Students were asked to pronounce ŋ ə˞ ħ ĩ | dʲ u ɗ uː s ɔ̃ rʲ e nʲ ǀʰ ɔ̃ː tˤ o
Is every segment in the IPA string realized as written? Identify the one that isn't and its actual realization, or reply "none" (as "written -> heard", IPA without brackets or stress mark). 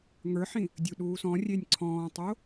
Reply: none